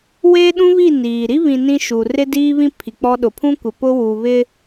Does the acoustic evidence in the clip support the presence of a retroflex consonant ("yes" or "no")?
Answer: no